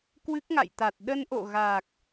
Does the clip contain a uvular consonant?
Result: no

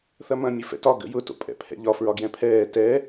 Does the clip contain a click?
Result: no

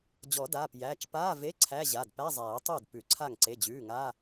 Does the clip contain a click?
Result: yes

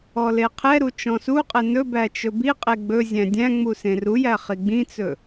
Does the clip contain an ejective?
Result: yes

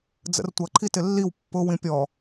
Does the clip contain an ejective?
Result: no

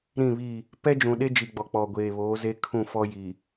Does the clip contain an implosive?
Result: yes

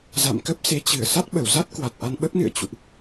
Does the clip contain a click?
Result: no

